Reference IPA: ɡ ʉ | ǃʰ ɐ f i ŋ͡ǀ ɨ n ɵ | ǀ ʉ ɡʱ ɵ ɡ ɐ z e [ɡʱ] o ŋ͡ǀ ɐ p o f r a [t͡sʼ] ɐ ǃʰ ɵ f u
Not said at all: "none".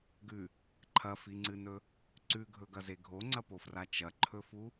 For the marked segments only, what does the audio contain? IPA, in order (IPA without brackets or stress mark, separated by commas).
ɡʱ, t͡ʃ